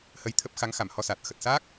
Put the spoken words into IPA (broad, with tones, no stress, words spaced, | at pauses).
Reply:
hə˧jt̪ʰə˦˥p̚ xa˨˦ŋxa˧˩mhɔ˧saː˨˩t̚ xə˨˩t̚sa˦˥k̚